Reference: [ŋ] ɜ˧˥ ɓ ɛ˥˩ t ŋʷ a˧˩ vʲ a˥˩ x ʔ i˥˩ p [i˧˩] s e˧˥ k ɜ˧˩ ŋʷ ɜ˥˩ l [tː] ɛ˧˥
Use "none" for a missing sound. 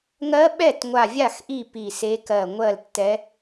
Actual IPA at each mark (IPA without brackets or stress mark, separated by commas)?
ŋ, i˧˩, tː